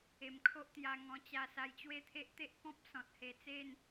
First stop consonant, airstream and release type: aspirated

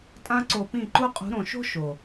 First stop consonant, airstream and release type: ejective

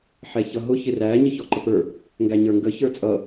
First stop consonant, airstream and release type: click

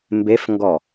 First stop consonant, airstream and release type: plain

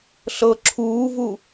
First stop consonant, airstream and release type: click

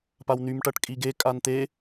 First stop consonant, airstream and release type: plain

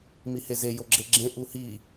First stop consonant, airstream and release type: click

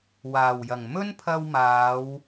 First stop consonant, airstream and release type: aspirated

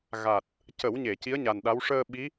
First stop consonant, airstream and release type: plain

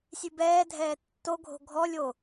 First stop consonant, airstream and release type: plain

